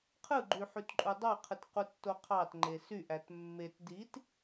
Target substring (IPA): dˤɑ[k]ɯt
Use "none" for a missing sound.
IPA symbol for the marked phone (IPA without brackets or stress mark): qʰ